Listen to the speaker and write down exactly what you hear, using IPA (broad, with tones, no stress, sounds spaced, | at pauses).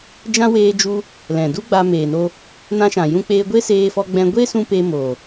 d͡ʒ ã˦ w eː˧ d͡ʒ u˧ | l ɛ̃˨ d u˦ ɡ͡b aː˧ m eː˨ n o˧ | n ã˧ ʃ ã˨ j ũ˦ k͡p eː˦ ɡʷ e˦ s eː˧ f ɔ˧ ɡ͡b ɛ̃˧ ɡʷ e˦ s ũ˧ p e˧ m oː˨